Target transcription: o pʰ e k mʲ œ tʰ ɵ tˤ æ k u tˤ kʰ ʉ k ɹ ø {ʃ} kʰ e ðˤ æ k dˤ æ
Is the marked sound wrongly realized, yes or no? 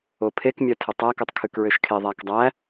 no